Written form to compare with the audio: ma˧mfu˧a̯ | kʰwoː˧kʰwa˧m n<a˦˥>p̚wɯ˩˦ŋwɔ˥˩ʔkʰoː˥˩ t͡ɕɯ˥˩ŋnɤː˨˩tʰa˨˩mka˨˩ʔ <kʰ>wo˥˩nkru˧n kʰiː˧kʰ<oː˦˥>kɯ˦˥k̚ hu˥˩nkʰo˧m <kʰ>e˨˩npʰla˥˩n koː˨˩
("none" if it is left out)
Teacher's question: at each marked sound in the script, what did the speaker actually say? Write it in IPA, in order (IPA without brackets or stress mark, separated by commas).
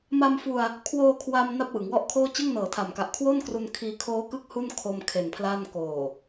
a˥˩, kʰ, oː˦˥, kʰ